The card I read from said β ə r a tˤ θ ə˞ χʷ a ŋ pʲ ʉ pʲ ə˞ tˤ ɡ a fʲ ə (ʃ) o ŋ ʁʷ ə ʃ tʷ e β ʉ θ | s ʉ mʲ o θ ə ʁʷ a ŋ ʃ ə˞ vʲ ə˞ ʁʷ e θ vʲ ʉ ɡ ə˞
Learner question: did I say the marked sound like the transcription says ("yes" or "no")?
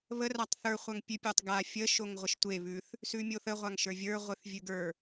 yes